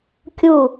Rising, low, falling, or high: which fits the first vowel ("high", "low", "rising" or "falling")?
falling